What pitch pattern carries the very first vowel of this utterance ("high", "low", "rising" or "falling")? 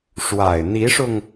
low